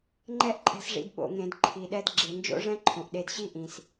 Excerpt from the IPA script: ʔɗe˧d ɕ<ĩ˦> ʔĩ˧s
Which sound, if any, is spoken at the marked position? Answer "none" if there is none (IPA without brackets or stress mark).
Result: i˦